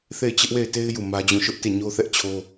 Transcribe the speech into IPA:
θ e˦˨ ɪ̯ t͡ɕ ɪ˦ ʔ w e˦˨ ɪ̯ t e˦ ɪ̯ j u˦˨ m ä˦ d͡ʑ ũ˦˨ ʃ ʊ˦ ʔ t e˦˨ ɲ o˦ θ ɛ˦ ʔ t͡ɕʰ o˦

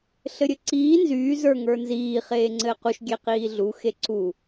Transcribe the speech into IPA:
ɬ ɘ ɾʲ ɘ ǀ iː n z yː z ə˞ ŋ ə˞ n z iː χ eː ŋ͡ǀ ɘː q u ʃ ɡʲ e q iː ɮ u x e ǀ u

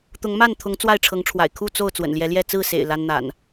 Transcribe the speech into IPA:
t̪ ʊ˨˦ ŋ m a˥˨ n t̪ʰ ʊ˨˦ ŋ t͡s w a˥˨ ɪ̯ ʈ͡ʂʰ ɤ˨˦ ŋ ʈ͡ʂʰ w a̰˨˩ ɪ̯ kʰ u˥˨ t͡s o˥˨ ʊ̯ t͡s w ə̰˨˩ n l j ɛ˨˦ l j ɛ˥˨ t͡s ɹ̩˥˨ s ḛ˨˩ ɪ̯ l a˦ n n̪ a̰˨˩ n

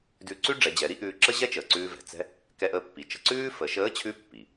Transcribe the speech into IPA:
d ʉ˧ ǀ ʉ˥ ɖ͡ʐ ɛ˩˧ d͡ʑ ɛ˩˧ ɾ i˥ ʔ ʉː˧ ǁ ə˥ ʑ ɛ˥ t͡ʃ əː˩ ǀ ʉː˧ v ɛ̤˩ t͡s ɛ̤˥ | k ɛ˧ ʔ əː˧ pː i˩ t͡ʃ ə̤˧ ǀ ʉː˥ f ə˩˧ ʃ əː˧˥ t͡ɕʰ ʉ˧˥ pː i˩

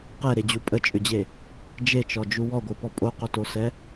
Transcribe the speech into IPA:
q ɛ ɾ e d͡ʑ u pʼ ə t͡ʃʼ ʏ d͡ʑ e | d͡ʒ e t͡ʃ ɔ d͡ʒ u w ɔ ɡʷ ɯ p ɔ pʼ o q o t o s ɛ

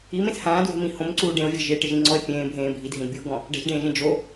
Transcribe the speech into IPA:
i m ẽ s h ãː d w e̤ m ĩ h õ m ǀ uː ɖ ẽ o̯ vʲ ɛ̤ ʒ e ʈ ɪ ʒ ĩ ŋ͡ǀ ɔ e̯ pʲ ẽː bʱ ẽː bʱ i d ɦ ĩ d bʲ u o̯ ɡ ɔ̃ | ɖ ɛ̤ ʒ ɖ ẽː ʒ ẽ d͡ʒ o

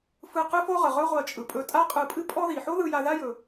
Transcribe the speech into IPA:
f ɯ˧ q ɨ˥ f o˥ ʁ ə˩ ʁ ɵ˥ ʁʷ ɜ˧ t͡ʃʼ ɯ˩ pʼ ɵ˧ tʼ a˥ qʼ ɯ˧ pʼ ɨ˥ pʼ ɔ˥ ð i˩ ħ o˥ ð ɯ˧ j a˧ ð a˥ j ɵ˩

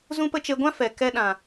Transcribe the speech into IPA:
z ũ˦ p ə˦ t͡ʃ e˧ ɡʷ ã˦ f ɛ˨ k ɛ˧ ɗ ã˨

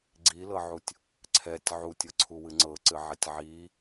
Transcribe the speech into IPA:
ɡ͡ǀ i l ɤ ʕ u tʲ | ǀʰ ɛ tʲ ʕ u tʲ ɤ ǀʰ u w ɨ ŋ͡ǀ ɤ ǀ ɨ ʕ ɛ tʲ ʕ i

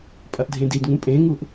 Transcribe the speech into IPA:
pʼ ɐ ʔ dʱ ẽ d i d ŋ ũ pʼ ẽ ŋ u ʔ

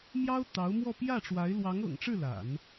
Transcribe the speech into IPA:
m j ɑ˥ ʊ̯ t̪ ɑ˧˥ ʊ̯ m w ɔ˥˧ p j ä˥˩ ʈ͡ʂ w a˧˥ ɪ̯ l w ɑ˧˥ ŋ ɤ̰˨˩ ŋ ʈ͡ʂ ɻ̩˥˩ l a̰˨˩˦ n

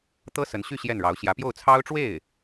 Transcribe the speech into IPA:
t̪ ɤ˥ s ə˧˥ n ɕ y˥˧ ɕ j ɛ˥˩ n ɻ ɑ˧˥ ʊ̯ ɕ j ä˧˥ p j o˥˩ ʊ̯ t͡sʰ ɑ˥ ʊ̯ ʈ͡ʂ w e˥˩ ɪ̯

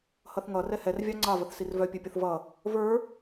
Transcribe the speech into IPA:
h ʌ θ ŋ ʌ r ɛ h ɛ r vʲ ɑ ŋ͡ǀ ɑ v ə θ s i r v œ pʲ œ pʲ ʌ θ v ʌ | v ə˞

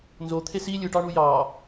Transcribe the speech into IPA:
n z o t̪ʰ e s i lʲ ɯ ʈ ɑ ɳ u j ɑ

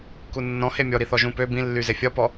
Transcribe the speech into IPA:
k u nː ɔ̃ h e mʲ ɔ ɾ i θ ɔ ʒ ũ p ø b ĩ lː y z e fʲ ɒ p ɔ

